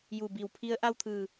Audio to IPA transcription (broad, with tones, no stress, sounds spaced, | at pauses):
j u˧˩ b i˧˩ w pʰ i˧˥ ə̯ ʔ a˥˨ w t̪ʰ ɯː˧˩